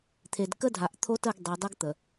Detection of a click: absent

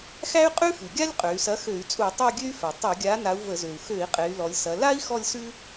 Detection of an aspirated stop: absent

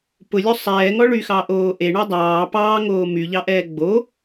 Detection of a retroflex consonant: present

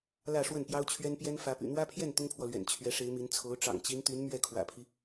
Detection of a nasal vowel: absent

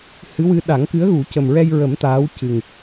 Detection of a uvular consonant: absent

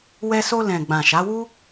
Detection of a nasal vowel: present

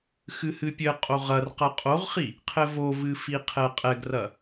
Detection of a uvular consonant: present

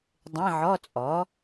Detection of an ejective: present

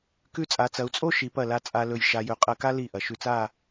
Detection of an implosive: absent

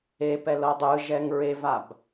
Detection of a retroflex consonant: absent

